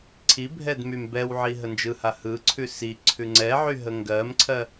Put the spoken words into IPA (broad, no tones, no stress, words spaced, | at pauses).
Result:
ǀʰibʱɛd mymbɛwʕi ɦənd͡ʒɯha hɯǀʰʉ si ǀʰʉŋ͡ǀɛʕy ɦəŋɡɜmǀʰɜ